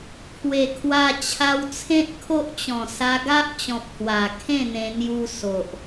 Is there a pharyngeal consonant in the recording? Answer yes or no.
no